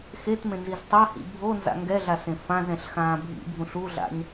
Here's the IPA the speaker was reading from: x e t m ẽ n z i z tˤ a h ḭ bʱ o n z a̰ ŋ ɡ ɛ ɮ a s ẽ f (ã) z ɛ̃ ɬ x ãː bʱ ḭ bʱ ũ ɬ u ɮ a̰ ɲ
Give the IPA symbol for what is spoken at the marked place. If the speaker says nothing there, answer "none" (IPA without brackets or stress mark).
ã